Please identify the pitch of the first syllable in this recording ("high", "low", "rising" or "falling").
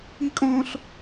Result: high